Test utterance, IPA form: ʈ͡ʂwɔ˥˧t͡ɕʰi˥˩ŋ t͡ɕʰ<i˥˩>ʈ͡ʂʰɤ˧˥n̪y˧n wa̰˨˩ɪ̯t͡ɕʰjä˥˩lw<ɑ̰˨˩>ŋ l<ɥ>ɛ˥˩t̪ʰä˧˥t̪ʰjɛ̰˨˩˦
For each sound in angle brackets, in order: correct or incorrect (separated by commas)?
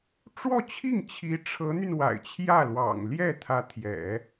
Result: incorrect, correct, incorrect